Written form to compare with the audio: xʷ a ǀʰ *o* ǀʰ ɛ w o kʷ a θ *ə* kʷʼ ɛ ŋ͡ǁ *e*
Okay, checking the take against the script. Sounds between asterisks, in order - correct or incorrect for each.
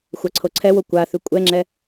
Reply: correct, incorrect, incorrect

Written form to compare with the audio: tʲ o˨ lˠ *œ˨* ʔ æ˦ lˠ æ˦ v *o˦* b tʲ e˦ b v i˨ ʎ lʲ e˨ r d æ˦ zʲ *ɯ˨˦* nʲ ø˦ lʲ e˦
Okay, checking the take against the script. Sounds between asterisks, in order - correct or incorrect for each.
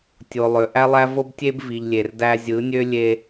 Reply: incorrect, correct, correct

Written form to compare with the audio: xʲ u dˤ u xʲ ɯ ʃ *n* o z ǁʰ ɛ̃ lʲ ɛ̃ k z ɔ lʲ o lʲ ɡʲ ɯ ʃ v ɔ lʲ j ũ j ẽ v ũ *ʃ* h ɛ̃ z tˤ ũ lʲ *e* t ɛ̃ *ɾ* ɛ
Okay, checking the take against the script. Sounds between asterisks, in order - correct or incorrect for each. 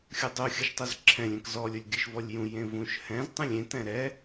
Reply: incorrect, correct, incorrect, correct

